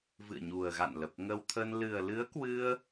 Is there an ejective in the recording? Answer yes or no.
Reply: no